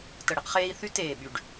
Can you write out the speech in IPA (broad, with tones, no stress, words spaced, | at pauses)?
tə˨˩ɽɛ˧qχeː˧i̯ θy˦˥teː˨˩ ɓy˨˩ɖ